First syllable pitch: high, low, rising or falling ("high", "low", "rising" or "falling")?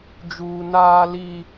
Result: high